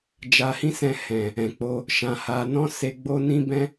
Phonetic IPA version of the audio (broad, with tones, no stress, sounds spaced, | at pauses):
d͡ʒ a˧ h ĩ˦ s ɛ̃˧ h ɛ̃˨ | ɛ̃˨ k͡p o˧ | ʃ ã˧ h a˧ n ɔ̃˦ s e˧ ɡ͡b o˦ n ĩ˦ b ɛ̃˦